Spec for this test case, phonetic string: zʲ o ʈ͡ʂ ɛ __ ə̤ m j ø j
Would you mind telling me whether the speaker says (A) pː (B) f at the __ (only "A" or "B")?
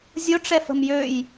B